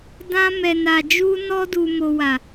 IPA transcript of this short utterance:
d ã˧ m ɛ˨ n a˨ d͡ʒ u˧ n ɔ˧ d u˨ m o˨ w a˨

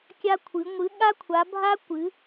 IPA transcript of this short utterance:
kʲ a˧ kʷʰ ɨ˩˧ ŋʷ ɨ˩˧ ɠ a˧ kʷʰ a˩˧ bʱ a˧ kʷ ɨ˩˧

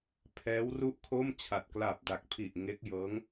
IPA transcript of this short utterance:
pʰ ɛː˦˥ w r u˥˩ ʔ kʰ o˥˩ m t͡ɕʰ a˨˩ t̚ k l aː˨˩ p̚ d a˨˩ k̚ pʰ i˨˩ ʔ ŋ e˦˥ k̚ j ɤː˦˥ ŋ

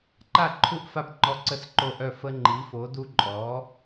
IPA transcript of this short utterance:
ǃ a˥˩ ǃʰ u˥˩ ʔ f a˥˩ p ŋ͡ǃ ɔ˦ ǀ ə˥˩ s ǃ o˥˩ ʔ œ˥˩ f ə˦ ŋ͡ǃ i˨˥ f o˨˥ d u˦ ǃʼ ɔː˨˥

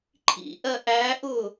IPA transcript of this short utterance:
ǃʰ ḭ ʔ ɜ ʔ æ ʔ ʊ

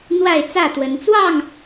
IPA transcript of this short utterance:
n̪ w a˥˨ ɪ̯ t͡s ä˥˨ t̪ w ə˨˦ n t͡s w ɑ˥˨ ŋ

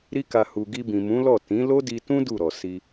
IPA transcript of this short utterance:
ɾ i˧ k a˨ h u˨ ɡ i˧ b ĩ˨ m ũ˨˦ l ɔ˦˨ t ĩ˨˦ l o˦ d i˧ t ũ˦ d u˦˨ ɾ ɔ˨ s i˧

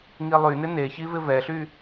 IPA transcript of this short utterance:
ŋ i lˠ y n ɪ n e ç i v ɪ v ɛ ɬ y

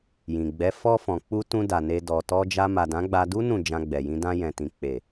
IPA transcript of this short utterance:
j ĩ˨ ɡ͡b ɛ˨˦ f ɔ˧ f ɔ̃˨ k͡p u˧ t ũ˧ d a˨ n e˧ d ɔ˨ t ɔ˧ d͡ʒ a˧ m a˨ d ã˨˦ ɡ͡b a˧ d u˦ n ũ˦˨ d͡ʒ ã˧ ɡ͡b ɛ˨ j ĩ˧ d ã˧ j ɛ̃˨ t ĩ˨ k͡p e˨

